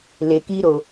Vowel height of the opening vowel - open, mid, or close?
mid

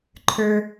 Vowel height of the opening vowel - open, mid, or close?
mid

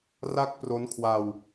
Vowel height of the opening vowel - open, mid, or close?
open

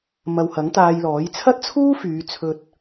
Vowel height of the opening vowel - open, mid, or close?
open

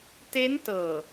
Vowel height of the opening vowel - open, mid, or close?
mid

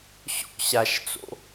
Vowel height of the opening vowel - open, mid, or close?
mid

